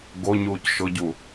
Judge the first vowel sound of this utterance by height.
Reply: mid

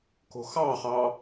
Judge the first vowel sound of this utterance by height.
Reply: mid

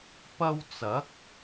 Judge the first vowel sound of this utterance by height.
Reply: low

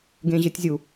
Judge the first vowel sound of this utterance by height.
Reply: mid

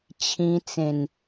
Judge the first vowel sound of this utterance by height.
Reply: high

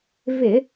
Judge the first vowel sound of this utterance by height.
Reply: high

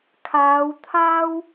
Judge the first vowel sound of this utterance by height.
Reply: low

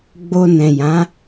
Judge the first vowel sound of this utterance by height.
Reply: mid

